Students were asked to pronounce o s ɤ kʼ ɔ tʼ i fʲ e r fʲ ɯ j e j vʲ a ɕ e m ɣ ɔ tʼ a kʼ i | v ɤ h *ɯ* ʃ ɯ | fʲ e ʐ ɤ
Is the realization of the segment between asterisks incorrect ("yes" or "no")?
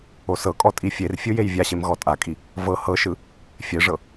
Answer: yes